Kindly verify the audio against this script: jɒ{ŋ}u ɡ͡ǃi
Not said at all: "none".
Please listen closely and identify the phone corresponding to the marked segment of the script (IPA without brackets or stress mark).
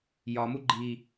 m